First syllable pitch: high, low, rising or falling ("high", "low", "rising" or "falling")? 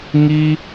high